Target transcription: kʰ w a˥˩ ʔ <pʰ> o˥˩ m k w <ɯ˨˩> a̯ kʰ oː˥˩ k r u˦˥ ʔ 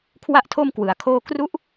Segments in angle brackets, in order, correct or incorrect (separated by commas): incorrect, incorrect